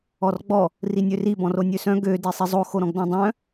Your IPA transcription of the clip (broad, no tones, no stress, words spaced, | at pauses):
ɔrɡ͡bɔ | rinʲøri bɔ̃ronʲøsœ̃ ɡø disˤizˤo xoɾɔ̃ɡdɔ̃dˤœ̃